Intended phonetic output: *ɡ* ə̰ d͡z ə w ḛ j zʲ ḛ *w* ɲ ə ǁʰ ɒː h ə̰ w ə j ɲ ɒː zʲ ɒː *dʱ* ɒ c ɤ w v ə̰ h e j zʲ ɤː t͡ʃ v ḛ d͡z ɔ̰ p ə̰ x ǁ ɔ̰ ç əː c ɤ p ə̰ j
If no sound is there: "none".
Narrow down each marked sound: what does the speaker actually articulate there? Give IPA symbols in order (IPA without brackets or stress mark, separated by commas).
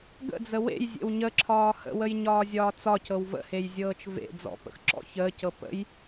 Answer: ɡ, w, t͡s